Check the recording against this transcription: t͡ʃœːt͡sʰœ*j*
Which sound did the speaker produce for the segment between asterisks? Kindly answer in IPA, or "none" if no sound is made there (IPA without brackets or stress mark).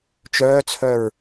ɹ